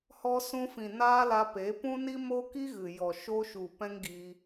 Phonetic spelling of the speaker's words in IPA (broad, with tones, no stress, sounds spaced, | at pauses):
h ɔ˧ s ũ˧ f ĩ˨ n aː˦ l a˧ p e˨˦ p ũ˦ n i˦ m oː˦ k i˦ ɣ ɨ˨ j ɔ˨ ʃ o˧ ʃ u˨ p ɛ̃˦ ŋ ɡ i˧